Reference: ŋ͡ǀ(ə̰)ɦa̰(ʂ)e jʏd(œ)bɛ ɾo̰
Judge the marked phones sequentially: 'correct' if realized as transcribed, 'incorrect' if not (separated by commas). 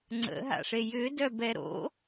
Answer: correct, correct, correct